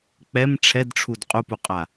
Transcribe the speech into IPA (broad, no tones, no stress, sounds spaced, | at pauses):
k͡p ɛ m ʈ͡ʂʰ ɛ d ʈ͡ʂʰ u d qʼ u p u qʼ a